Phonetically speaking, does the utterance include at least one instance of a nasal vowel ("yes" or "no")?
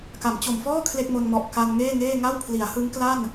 no